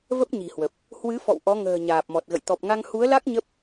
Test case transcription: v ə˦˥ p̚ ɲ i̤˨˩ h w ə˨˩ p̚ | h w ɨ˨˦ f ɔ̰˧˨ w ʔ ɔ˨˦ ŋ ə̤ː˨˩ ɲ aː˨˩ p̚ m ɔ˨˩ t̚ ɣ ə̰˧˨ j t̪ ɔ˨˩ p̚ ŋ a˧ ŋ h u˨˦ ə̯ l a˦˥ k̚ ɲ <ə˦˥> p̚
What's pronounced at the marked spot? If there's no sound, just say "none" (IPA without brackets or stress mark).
ə˦˥